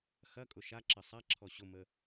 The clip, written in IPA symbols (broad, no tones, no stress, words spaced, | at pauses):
xɐkʼʊ ʃaǁɐ sˤaǁʰɔ ɕʊmə